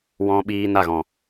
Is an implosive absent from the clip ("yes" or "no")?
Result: no